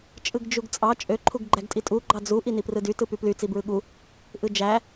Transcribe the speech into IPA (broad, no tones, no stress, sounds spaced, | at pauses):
t͡ʃʼ ɯ ɡ d͡ʒ u ɡ t͡sʼ ɑ t͡ʃʼ ø ǃʰ u ɡ ɡ͡ǃ æ ɡ tʼ i tʼ u ɡ͡ǃ ɑ d͡z u ʔ i n i p r ɯ d y t ɯ p y p l y t͡s i b ɹ ɯ ɠ u | ʔ ɯ d͡ʒ æ